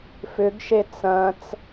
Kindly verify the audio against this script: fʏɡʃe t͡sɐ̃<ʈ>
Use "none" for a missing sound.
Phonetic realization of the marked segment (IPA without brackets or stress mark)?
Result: t͡s